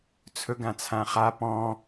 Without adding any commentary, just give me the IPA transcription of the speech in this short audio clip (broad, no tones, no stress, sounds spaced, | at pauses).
t͡sʰ ɵ ɡ ã t͡sʰ ã χ a p ɔ̃